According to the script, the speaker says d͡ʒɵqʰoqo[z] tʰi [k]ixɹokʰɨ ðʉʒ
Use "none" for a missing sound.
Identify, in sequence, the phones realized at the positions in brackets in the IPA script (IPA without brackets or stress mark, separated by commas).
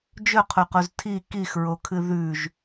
z, k